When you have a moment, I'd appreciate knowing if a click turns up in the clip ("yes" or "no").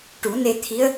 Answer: no